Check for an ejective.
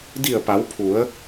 absent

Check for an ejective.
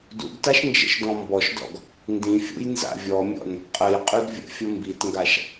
present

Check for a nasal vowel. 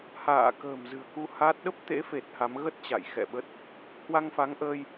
absent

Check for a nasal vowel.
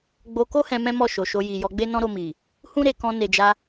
present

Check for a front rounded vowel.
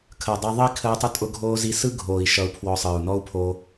absent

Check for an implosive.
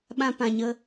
present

